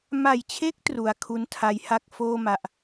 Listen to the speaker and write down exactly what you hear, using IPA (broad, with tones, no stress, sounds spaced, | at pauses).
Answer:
m a˨˩ j t͡ɕʰ e˦˥ k̚ t r u˩˦ a̯ kʰ u˦˥ n tʰ a˧ j h a˥˩ k̚ f oː˥˩ m a˨˩ ʔ